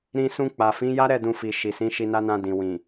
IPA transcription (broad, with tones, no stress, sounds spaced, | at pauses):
ɾ ĩ˧ s ũ˧ k͡p a˨ f ĩ˨˦ j a˦ ɾ ɛ˦˨ d ũ˧ f i˨ ʃ i˨ s ĩ˨˦ ʃ i˧ n a˦ n ã˧ d ĩ˨ w ĩ˨